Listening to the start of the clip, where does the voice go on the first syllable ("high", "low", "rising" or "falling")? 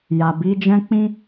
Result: low